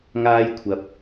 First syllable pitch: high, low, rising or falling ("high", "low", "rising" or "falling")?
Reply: high